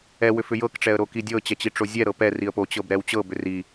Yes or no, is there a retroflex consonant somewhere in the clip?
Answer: yes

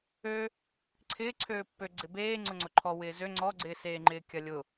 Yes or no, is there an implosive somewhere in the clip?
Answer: no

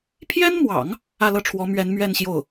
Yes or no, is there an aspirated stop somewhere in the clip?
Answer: yes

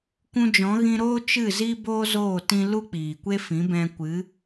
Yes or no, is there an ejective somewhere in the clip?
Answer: no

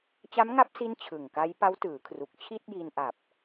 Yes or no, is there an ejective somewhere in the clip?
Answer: no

